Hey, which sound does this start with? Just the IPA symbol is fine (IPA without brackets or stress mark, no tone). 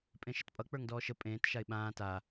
pʼ